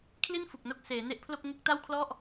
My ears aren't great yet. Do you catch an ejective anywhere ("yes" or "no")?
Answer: no